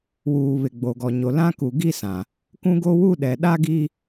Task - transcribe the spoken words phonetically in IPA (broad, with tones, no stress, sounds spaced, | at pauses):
w uː˨ β ɪ˨ ɡ͡b o˨ ɡ ɔ˨ ɲ o˨ l ã˦ k u˨ ɡ i˦ s ã˨ | k ũ˦ ɡ o˦ w u˦ ɗ ɛ˨ ɗ a˦ ɡ i˦